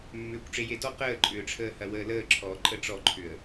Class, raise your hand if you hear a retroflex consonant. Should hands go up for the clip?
yes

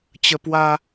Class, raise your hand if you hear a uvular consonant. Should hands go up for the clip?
no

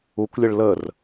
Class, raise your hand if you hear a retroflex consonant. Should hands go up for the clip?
yes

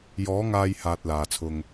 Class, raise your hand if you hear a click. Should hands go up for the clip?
no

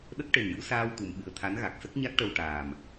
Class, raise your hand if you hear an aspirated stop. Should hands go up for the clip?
yes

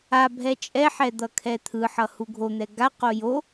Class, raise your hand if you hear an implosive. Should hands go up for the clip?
no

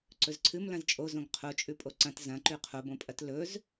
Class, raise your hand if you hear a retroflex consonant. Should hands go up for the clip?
no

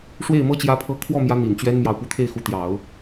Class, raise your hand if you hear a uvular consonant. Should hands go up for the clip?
no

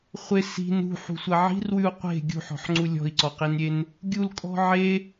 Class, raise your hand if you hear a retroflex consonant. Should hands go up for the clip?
no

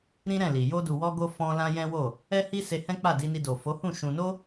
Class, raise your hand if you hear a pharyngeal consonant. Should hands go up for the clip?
no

